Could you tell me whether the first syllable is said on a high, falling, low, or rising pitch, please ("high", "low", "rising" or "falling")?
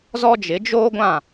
high